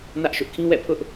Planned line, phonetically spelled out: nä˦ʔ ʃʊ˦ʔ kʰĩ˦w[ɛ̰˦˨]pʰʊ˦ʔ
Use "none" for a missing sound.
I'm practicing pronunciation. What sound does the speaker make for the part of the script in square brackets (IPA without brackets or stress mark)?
ɛ̰˦˨